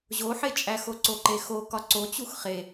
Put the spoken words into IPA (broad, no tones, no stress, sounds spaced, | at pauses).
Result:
ʑ o ħ e t͡ʃʼ æ x o ǀ o ǃ e x o k ɒ ǀ o t͡ɕ u x χ e